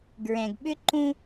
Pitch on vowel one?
low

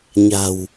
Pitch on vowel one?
low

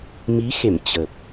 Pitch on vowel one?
rising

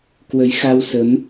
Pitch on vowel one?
rising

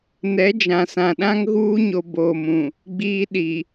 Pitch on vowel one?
rising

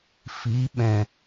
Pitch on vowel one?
rising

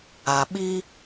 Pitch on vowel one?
low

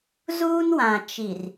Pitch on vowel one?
high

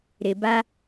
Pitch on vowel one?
low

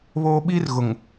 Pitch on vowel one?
high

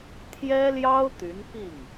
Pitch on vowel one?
high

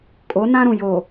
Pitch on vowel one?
rising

